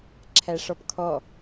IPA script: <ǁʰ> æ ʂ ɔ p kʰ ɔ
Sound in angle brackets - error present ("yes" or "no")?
no